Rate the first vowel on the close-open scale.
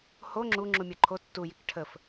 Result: mid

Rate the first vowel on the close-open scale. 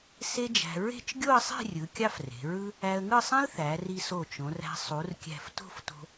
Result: mid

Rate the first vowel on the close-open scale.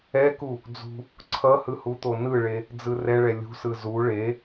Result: mid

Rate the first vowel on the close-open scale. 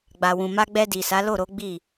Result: open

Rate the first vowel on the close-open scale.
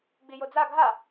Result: close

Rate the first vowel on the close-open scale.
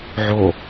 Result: mid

